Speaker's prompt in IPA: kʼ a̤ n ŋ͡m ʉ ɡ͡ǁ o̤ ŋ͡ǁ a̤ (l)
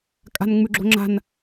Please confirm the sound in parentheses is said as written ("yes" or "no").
no